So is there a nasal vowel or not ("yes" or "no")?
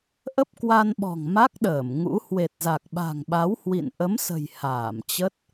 no